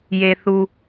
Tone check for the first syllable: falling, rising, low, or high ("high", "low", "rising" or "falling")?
low